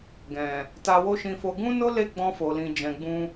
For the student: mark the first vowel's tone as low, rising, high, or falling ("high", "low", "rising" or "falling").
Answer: low